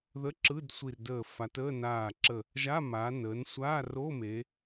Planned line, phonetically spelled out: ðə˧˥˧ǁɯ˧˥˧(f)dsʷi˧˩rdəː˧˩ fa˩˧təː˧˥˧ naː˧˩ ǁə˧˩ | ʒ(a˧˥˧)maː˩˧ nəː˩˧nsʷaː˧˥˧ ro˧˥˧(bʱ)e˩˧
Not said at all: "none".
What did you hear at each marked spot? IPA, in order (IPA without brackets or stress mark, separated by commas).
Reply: none, a˧˥˧, m